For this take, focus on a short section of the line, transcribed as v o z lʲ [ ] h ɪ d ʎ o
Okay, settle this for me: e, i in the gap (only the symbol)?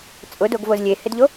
e